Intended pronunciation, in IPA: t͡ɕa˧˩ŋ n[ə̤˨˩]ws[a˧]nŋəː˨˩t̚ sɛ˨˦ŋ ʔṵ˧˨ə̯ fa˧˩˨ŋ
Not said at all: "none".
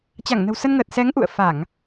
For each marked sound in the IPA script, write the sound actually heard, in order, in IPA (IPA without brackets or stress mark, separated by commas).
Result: ə̤˨˩, ə˧